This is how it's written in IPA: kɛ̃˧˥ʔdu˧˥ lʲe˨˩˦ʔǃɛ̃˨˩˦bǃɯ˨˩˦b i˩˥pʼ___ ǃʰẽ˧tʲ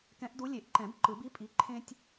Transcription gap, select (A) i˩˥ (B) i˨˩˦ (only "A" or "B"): A